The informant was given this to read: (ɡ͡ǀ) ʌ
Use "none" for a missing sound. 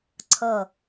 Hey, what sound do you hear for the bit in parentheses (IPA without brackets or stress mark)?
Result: ǀʰ